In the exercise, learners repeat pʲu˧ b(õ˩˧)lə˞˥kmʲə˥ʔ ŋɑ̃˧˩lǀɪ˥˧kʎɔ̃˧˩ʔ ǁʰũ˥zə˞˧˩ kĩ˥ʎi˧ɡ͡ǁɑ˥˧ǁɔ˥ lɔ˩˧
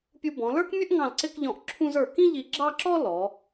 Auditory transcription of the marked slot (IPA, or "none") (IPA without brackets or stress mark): ɔ̃˩˧